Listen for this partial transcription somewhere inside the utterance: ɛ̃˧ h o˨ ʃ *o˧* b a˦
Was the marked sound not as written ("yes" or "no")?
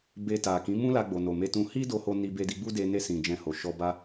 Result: yes